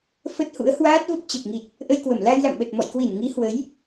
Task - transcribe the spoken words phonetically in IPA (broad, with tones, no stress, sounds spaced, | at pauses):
f ə˦˥ t̚ h ṵ˧˥ ə̯ h w aː˦˥ t̚ v ə˦˥ p̚ t͡ɕ ə˨˩ p̚ ŋ i˨˩ t̚ | ʔ ə˧ j k w ə˧˩ m l a˧ j l a̰˧˨ m ɓ ə˨˩ t̚ m ɔ̰˧˨ j k w i˧˩ n ŋ i˨˦ h w ə˨˦ j